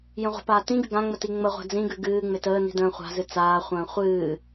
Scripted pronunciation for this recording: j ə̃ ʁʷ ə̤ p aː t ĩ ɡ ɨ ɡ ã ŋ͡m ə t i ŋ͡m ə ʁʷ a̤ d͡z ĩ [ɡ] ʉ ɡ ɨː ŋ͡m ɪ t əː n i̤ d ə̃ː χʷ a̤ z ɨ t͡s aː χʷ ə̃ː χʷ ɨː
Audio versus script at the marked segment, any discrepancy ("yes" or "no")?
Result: no